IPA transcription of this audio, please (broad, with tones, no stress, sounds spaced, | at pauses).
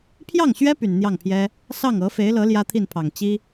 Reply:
pʰ j ɑ˥˩ ŋ ɕ ɥ ɛ˥ p y˨˩ n n̪ j ɑ˥˩ ŋ pʰ j ɛ˥ | s ɑ˥˩ ŋ ɤ˧˥ f e˧˥ ɪ̯ l ɤ˧˥ l j ä˥ t̪ʰ i˥˩ n pʰ ɑ˨˩ ŋ t͡ɕ i˥